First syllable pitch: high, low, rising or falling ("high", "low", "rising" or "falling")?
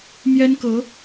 high